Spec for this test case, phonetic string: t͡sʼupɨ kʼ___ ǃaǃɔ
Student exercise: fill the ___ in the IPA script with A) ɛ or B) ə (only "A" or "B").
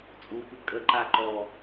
B